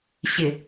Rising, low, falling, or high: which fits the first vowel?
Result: low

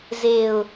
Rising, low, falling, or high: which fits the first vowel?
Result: low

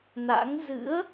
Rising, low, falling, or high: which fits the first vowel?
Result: rising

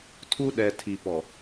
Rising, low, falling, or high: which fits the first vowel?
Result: high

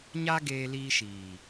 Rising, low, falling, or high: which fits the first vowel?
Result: high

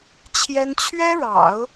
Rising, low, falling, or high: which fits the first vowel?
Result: high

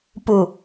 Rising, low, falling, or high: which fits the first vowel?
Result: low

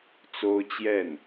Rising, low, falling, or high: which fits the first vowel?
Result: high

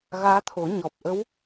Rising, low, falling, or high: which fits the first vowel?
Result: rising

